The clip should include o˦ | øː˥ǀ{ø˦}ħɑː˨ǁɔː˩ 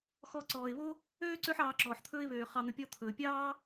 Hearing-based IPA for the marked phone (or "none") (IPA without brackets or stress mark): ø˦